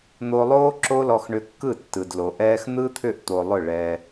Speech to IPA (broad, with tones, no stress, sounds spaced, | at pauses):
n̪ o˧ lˠ oː˦ ǁ o˦ l ɔ˧ x ɳ ʏ˧ kː ɯ˦˨ tː ɯ˨ d l o˨ ʔ ɛː˦ x n̪ ɯ˦ t̪ʰ ʏ˦˨ ʔ t̪ o˨ lˠ ʏ˦˨ ɭ ɛ˧